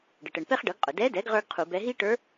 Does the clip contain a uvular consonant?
yes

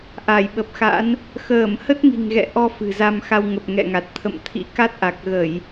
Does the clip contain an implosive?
yes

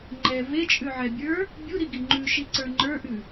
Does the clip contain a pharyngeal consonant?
yes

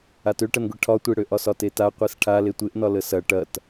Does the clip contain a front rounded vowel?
yes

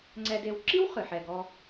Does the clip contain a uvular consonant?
yes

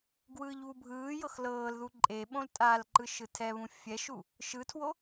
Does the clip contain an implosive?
yes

